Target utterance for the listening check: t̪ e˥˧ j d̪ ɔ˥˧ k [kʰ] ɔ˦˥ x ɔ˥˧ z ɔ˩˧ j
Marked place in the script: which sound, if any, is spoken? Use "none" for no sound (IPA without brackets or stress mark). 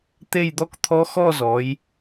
t̪ʰ